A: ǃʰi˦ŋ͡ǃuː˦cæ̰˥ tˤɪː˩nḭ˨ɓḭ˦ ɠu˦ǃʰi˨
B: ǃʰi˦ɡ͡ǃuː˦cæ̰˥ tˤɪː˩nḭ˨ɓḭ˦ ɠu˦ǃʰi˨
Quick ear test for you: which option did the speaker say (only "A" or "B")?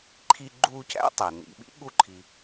B